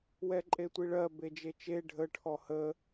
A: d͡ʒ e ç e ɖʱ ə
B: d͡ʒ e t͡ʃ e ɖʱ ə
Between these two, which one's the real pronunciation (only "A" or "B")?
B